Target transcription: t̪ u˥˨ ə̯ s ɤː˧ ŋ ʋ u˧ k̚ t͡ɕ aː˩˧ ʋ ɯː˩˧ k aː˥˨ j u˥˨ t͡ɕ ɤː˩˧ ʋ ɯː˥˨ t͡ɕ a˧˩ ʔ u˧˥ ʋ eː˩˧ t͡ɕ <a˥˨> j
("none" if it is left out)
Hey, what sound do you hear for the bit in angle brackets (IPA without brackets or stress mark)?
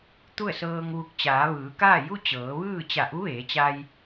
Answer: a˧